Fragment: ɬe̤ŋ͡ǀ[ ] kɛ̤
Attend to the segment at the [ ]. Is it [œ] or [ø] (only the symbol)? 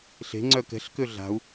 œ